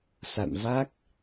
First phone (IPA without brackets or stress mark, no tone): s